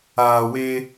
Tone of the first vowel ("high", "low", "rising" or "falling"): low